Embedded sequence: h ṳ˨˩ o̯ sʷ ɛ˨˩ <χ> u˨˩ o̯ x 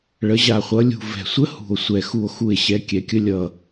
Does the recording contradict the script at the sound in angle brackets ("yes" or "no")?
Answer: yes